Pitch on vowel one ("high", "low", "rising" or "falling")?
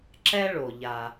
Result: high